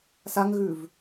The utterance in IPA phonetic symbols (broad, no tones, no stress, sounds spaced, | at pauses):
s a ŋ ɣ ʉ v